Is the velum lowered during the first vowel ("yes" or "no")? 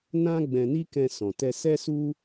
yes